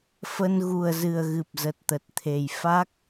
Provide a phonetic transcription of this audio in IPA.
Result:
f ə˧ n ɣ u˨˩ ə̯ z ɨ˨˩ ə̯ ɣ ɨ˨˩ p̚ z ə˨˩ t̚ t̪ ə˨˩ t̚ t̪ʰ e˨˩ j f a˦˥ k̚

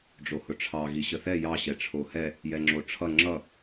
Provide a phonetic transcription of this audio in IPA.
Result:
ɖ͡ʐ o h ʊ ʈ͡ʂʰ ɑ ɣ i ɕ ə θ ɛ j ɑ ɕ ɛ ʈ͡ʂʰ o h ɛ | j ɛ ŋ͡ǁ o ʈ͡ʂʰ ʌ ŋ͡ǁ ʌ

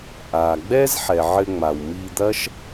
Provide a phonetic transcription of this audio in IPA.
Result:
ʔ aː˩ ɡ͡b ɛː˥ z ħ ɛ˩ ʕ ɘ˨ ŋ͡m a˩ w m iː˨ d̪ ɐ˦ ʃ

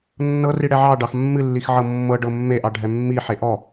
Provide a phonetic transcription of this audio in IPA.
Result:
nː ɤ r i ɽ ɛ ʕ ɑ ɖ ɑ x mː ɨ lː i x ʕ ɤ mː ɤ ɖ ɤ mː e ʔ ɑ ɖʱ ɛ mː i ħ e ʔ ɔ

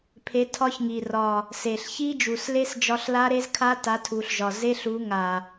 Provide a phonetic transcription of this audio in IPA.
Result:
pʰ e˨˥ tʰ ɒ˦˥ ç ŋ i˨˩ r ɒ˨˩ | s e˨˩ ɬ ç i˦˥ d͡ʒ u˨˩ s l e˦˥ s d͡ʒ ɒ˦˥ ɬ l a˦˥ ɾ e˦˥ z kʰ a˦˥ t a˨˥ tʰ u˨˩ ɬ ʒ ɒ˨˩ z e˦˥ ɬ u˨˥ ŋ a˨˩

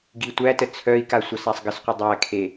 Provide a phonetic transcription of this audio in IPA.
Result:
ɡ i tʷ æ t ə t͡sʰ œ i̯ k a sʷ ʌ s æ sˤ ɡ ə s qʷ ə dˤ æ kʰ e

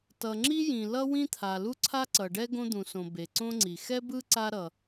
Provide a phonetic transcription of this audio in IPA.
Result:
t ʌ˩ ŋ͡ǁ i˥ j ĩ˩ l ʌ˥ w ĩ˥ t̪ʰ a˩ l u˥ ǀʰ a˥ ǀ ʌ˩ ɖ ɛ˥ ɡ õ˥ d̪ ũ˩ s õ˩ b e˩ ǀ õ˥ ŋ͡ǀ i˩ x ɛ˥ b ɯ˥ ǀ a˥ ɾ ʌ˩

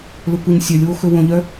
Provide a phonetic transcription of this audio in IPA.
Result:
l ɵ kʷ œ ɲ sʲ œ lʲ w o x ɵ w õ ʎ œ

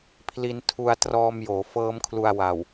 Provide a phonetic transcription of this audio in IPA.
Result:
pʰ l i˧ n tʰ u˧ a̯ t r ɔː˧ m j oː˩˦ f ɤː˦˥ m kʰ l u˧ a̯ w a˨˩ w

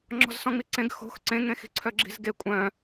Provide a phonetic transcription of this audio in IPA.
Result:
ŋ͡ǁ ɔ̤ z s ɔ̃ ŋ͡m i ǀ ẽ ɡ x o̤ x ǀ ẽ ŋ ẽ x i̤ ǀʰ œ ɡ͡ǁ i̤ z ɡ e kʷʼ œ̃

